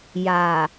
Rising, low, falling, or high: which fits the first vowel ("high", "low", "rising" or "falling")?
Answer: low